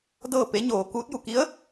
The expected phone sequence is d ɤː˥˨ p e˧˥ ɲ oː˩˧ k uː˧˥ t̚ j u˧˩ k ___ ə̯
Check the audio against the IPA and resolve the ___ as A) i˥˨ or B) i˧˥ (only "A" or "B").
B